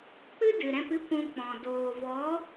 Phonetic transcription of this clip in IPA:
k͡p ɨ˦ d ɨ˨ ɾ ɛ̃˧ p ɨ˦ kʷ ũ˧ k͡p ɔ̃˨ d oː˨ v ɔ˨˦

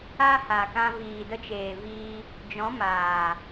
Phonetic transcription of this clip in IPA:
a˦ h a˨ k ã˧ v iː˨ d ə˧ t͡ʃ eː˨ v iː˧ | d͡ʒ ɔ̃˨˦ m aː˨

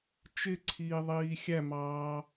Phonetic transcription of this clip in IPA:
t͡ʃ ɪ ǀʰ iː ðˤ iː xʲ æ m ɑː

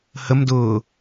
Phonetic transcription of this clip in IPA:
h ə m d ʊː

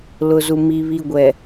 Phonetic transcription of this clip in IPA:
l ʊ˨ z u˨ m i˨ β i˨ ɡʷ ɛ˨

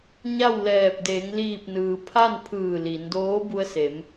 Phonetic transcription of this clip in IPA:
ɲ a˥˨ w l ɛː˧˩ p̚ d eː˩˧ ŋ l iː˧˩ p̚ n ɯː˩ pʰ a˥˨ n pʰ ɯː˧˩ l i˩˧ n d oː˧˥ b u˧ ə̯ s e˩˧ m

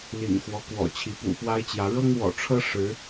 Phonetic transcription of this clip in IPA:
l ḭ˨˩ ŋ x w ɔ˦ k w ɔ̰˨˩ t͡ɕʰ i˨˦ p ṵ˨˩ f w a˦ ɪ̯ t͡ɕ j ä˨˦ ɻ ɤ˦ ŋ w ɔ̰˨˩ ʈ͡ʂʰ ɤ˦ ʂ ɻ̩˨˦

